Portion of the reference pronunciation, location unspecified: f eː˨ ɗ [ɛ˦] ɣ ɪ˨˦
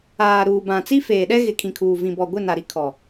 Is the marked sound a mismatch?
no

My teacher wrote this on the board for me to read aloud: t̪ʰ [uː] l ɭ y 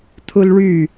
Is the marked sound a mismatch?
yes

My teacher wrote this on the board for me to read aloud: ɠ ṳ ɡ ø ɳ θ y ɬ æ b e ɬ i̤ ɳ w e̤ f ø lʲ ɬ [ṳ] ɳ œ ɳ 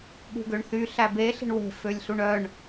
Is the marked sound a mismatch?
yes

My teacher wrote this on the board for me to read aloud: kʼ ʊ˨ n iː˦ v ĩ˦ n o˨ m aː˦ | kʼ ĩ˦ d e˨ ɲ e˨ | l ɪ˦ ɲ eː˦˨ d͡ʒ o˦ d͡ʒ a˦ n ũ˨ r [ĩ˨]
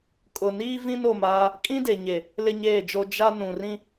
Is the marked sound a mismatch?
yes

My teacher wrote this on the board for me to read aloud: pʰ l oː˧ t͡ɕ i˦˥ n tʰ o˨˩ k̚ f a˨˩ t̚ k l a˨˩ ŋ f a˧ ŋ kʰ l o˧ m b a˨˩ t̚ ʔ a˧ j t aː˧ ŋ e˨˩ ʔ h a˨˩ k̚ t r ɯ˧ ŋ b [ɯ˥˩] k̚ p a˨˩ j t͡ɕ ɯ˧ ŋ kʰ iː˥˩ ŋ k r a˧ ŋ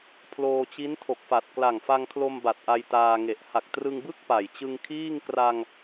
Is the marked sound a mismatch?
no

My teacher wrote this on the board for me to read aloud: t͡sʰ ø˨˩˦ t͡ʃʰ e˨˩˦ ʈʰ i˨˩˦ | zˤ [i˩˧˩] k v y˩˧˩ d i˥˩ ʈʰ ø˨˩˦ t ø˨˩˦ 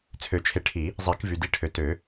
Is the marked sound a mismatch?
yes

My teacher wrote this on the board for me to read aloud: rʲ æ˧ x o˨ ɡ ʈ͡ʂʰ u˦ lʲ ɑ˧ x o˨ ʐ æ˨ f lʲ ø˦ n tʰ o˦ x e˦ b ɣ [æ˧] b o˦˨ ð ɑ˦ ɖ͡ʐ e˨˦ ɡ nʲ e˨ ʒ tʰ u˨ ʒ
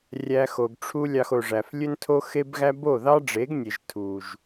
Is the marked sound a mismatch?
yes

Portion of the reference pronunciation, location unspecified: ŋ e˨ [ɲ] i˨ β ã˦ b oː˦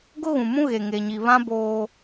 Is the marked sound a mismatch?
no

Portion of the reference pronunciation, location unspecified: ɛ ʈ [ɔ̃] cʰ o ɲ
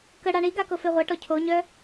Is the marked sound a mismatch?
yes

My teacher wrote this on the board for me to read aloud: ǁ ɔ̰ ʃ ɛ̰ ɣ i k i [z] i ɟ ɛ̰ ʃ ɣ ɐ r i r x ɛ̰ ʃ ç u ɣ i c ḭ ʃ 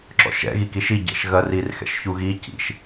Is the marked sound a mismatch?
yes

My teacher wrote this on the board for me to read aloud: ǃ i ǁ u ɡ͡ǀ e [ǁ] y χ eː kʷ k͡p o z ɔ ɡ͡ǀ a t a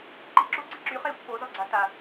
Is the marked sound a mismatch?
no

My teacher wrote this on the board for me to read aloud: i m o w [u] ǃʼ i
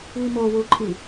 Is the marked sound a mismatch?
no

